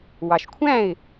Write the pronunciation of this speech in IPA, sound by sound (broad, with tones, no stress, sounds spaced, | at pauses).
w ɑ˨ ʃ kʷʰ æ̃˥˨ ɪ̯